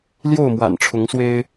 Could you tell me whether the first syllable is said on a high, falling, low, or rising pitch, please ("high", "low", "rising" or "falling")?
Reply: falling